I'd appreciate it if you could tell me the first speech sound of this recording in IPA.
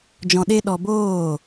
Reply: d͡ʒ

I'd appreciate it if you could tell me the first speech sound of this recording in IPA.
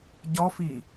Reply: ɟ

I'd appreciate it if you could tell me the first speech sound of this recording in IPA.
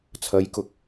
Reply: t͡sʰ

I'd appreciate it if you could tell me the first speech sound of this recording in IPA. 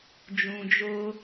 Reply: d͡ʒ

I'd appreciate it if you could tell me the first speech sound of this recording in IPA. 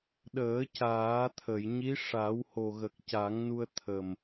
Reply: ɗ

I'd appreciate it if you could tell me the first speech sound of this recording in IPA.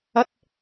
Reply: ɐ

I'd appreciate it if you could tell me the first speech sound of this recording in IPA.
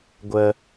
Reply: ɡʷ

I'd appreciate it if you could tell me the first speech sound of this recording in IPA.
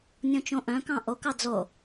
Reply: nʲ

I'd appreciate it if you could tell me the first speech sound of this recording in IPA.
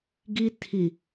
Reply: ɡ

